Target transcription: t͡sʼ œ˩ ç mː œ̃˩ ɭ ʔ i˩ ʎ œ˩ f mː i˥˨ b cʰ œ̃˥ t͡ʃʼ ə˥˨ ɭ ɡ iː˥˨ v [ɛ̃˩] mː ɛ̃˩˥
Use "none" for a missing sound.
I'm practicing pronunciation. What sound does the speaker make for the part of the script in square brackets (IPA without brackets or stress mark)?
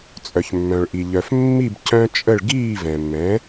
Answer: ɛ̃˩